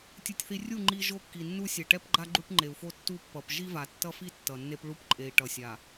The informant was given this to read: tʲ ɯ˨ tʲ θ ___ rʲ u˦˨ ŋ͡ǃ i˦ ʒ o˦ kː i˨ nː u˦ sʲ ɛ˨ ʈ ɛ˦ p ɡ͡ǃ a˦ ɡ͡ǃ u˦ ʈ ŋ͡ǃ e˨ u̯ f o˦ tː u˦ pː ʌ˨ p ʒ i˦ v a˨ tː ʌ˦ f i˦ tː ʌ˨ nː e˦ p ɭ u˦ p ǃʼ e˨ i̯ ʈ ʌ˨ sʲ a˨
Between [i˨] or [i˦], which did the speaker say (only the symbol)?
i˨